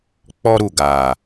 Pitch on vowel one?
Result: high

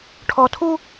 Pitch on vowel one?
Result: high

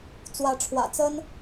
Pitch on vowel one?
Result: rising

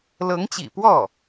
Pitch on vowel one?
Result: rising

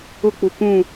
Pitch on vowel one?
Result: falling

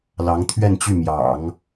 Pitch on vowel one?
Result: rising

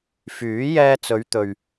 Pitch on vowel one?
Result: rising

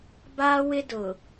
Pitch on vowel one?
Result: high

